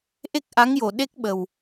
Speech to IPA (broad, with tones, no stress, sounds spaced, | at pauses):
ʔ e˦˥ k̚ ʔ a˧˥ ŋ j o˨˩ ɗ e˦˥ k̚ ɓ ə˨˩ w